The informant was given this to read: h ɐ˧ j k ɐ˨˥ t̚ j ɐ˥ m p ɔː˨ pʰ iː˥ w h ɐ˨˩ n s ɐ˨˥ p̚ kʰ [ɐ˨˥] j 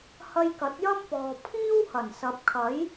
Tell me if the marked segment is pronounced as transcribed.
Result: yes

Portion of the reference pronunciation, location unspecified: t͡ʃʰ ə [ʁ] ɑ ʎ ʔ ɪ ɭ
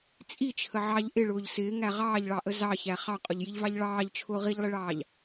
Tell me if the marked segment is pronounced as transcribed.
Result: no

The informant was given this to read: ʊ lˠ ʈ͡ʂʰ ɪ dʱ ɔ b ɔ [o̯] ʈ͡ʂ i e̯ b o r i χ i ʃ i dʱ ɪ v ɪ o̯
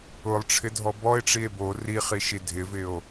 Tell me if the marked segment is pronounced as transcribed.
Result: no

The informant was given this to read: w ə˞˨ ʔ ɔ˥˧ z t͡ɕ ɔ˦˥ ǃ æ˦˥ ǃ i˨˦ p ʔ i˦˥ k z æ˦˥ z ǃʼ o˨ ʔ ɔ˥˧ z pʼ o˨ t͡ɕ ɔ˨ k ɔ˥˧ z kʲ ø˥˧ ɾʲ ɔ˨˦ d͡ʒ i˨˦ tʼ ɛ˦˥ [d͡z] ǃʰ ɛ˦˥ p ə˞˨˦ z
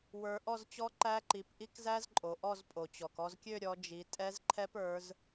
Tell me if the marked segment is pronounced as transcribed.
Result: no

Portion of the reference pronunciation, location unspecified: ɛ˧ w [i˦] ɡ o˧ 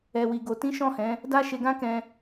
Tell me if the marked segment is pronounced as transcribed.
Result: no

